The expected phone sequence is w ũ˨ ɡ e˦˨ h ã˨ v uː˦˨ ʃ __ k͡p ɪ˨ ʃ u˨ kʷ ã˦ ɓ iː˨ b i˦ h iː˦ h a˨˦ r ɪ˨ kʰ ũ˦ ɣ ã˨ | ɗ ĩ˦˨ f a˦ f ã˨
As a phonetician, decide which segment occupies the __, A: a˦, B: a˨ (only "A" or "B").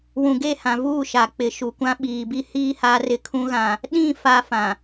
B